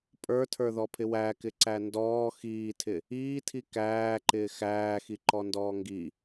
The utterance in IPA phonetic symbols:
pʼ ə˞ tʰ ə˞ ð ɔ pʰ ɪ w æ k ɪ ǀ æ n d ɔː x iː tʰ ɪ | iː tʰ i k æː ǃ ɪː x æː x i ǃ ɔ n d ɔː ŋ ɡ i

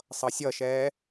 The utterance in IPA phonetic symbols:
sˤ ʌ sʲ ʌ ʃ ɛː

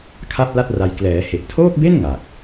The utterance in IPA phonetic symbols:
kʰ a˥˩ p̚ l a˥˩ t̚ r a˧ j k l ɛː˩˦ h e˨˩ ʔ tʰ oː˥˩ k̚ b e˥˩ n ŋ a˨˩ k̚

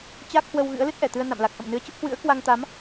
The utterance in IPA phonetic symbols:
t͡ɕ a˦˥ k̚ h w ə˧ w ɣ ɨ̰˧˥ ə̯ l ɨ˦˥ t̚ ʔ ɛ˧˩ t̪ ɨ˧ ə̯ n a̰˧˨ m l a˨˩ k̚ ʔ ə̰˧˨ m n ɨ˨˦ ə̯ t͡ɕ ə˦˥ p̚ h w ɨ̰˧˥ ə̯ k w a˧ ŋ t̪ a˨˦ m

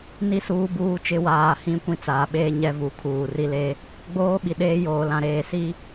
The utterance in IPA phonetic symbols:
n i˦˨ s uː˦ b uː˦ t͡ʃ ɪ˦ w aː˨ h ĩ˦ kʷ ĩ˦ t͡s aː˨ ɓ eː˦ ɲ ɛ˦ v u˨ kʰ uː˨ r i˦ l e˦ | ɡ͡b oː˦ ɓ i˨ ɗ eː˦ j oː˨ l ã˨ ɾ eː˨ s i˦

